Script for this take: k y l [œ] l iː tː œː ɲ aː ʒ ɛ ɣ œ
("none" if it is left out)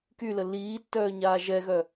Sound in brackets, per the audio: ə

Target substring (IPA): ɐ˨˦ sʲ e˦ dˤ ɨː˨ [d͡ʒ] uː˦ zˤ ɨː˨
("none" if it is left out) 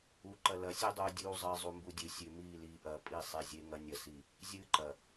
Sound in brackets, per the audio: dʲ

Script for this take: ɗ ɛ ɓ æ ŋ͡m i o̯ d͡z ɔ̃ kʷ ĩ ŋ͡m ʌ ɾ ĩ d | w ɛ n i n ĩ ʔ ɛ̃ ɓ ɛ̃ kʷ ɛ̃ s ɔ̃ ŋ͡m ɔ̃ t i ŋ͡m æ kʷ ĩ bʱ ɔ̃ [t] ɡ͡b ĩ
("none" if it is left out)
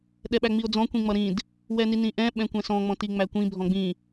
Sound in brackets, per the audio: none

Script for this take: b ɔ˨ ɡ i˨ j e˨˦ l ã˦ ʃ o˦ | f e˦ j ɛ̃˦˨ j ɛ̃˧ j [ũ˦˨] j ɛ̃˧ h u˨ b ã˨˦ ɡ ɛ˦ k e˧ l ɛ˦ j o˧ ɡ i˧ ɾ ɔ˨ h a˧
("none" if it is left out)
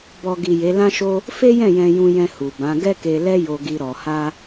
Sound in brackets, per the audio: ũ˧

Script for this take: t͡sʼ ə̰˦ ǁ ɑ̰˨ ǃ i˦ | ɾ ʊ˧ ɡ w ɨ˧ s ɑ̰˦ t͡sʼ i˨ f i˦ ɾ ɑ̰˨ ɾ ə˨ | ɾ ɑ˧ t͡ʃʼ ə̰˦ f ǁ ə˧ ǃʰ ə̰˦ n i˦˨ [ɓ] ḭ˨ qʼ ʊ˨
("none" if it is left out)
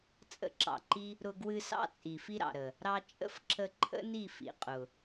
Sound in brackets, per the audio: f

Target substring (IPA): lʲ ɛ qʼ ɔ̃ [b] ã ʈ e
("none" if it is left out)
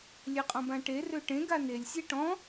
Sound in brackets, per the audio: b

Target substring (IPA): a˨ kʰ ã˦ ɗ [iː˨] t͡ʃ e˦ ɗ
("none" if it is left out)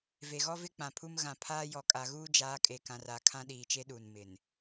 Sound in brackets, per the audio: iː˨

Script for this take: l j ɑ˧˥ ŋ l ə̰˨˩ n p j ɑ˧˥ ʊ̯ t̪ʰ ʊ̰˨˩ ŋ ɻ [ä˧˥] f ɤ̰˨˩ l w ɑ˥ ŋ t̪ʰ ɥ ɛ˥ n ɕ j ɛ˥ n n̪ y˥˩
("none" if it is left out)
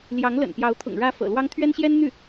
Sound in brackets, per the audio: ä˧˥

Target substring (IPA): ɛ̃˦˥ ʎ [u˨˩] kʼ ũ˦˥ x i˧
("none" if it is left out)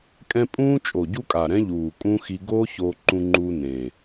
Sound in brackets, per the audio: uː˨˩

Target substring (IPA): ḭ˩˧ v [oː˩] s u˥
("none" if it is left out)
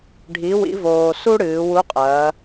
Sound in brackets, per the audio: oː˩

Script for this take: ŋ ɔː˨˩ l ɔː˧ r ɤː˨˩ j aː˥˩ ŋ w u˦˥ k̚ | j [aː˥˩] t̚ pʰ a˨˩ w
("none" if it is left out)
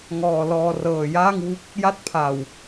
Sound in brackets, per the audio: a˥˩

